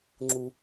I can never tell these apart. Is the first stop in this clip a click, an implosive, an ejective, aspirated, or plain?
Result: click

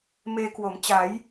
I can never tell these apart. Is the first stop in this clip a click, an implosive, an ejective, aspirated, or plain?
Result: plain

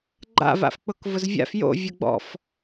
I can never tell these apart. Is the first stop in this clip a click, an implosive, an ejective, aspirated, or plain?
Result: click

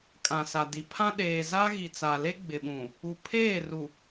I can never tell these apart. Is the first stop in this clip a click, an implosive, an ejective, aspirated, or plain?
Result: ejective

